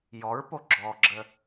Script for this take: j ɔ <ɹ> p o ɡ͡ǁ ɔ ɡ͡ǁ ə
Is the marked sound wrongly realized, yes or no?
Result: no